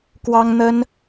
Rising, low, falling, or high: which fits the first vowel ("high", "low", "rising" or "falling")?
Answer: high